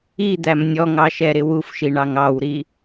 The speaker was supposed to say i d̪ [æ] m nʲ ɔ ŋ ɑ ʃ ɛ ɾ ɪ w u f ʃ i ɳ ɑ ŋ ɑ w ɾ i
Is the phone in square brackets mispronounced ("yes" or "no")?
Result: no